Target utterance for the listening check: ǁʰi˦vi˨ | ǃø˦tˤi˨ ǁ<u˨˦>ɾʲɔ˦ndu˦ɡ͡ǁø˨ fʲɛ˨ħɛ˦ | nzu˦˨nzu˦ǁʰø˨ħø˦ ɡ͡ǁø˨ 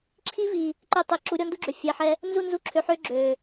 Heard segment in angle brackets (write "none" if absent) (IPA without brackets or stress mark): u˨˦